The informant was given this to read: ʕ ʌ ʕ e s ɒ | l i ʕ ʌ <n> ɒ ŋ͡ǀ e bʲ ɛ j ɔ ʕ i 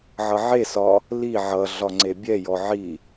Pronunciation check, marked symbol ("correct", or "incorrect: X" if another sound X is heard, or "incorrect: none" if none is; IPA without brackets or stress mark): incorrect: ɮ